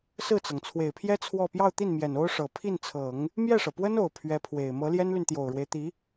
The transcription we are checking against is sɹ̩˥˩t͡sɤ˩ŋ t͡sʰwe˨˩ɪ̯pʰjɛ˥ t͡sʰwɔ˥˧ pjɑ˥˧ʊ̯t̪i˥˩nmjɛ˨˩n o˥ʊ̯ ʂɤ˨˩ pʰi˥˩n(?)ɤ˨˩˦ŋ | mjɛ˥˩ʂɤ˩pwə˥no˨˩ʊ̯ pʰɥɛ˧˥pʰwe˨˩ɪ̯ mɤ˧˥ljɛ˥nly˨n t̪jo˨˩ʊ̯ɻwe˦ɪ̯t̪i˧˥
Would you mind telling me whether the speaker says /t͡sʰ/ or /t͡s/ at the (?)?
t͡sʰ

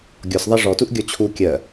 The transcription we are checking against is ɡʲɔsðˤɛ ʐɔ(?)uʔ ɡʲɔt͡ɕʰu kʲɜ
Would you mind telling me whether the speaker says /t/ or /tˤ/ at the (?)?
t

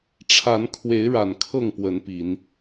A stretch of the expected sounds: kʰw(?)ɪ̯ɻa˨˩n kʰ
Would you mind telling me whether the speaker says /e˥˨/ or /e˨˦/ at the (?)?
e˨˦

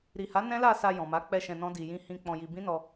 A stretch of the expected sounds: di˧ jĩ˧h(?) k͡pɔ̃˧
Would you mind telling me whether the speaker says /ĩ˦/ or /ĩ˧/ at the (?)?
ĩ˧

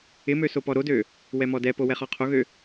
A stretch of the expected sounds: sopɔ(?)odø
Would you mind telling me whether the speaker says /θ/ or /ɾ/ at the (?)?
ɾ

